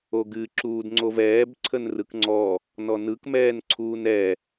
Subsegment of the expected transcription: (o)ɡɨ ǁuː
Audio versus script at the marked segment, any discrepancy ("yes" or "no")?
no